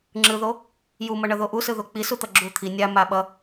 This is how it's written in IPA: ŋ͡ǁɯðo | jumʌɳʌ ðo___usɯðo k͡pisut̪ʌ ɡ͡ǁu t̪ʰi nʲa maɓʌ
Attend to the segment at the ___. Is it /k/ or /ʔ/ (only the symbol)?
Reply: ʔ